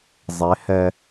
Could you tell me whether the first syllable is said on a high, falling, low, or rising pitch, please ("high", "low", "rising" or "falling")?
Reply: rising